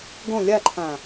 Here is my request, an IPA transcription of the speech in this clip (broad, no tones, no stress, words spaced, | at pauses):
ɡõ lʲaǃʰã